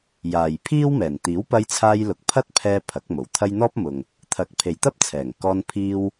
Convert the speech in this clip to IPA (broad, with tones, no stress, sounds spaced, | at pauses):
j aː˨ j pʰ iː˥ w m ɛː˨˩ n t̪ iː˨˥ w p ɐ˧ j t͡sʰ aː˧ j l ʊ˨ k̚ pʰ ɐ˥ t̚ pʰ ɛː˧ pʰ ɐ˨˥ k̚ m o˨˩ w t̪ʰ ɐ˥ j n̪ ɔː˥ p̚ m ʊ˨ ŋ | t̪ʰ ɐ˨˥ k̚ pʰ e˨ j t̪ ɐ˥ p̚ t͡sʰ ɛː˨˩ ŋ k ɔː˧ n pʰ iː˧ w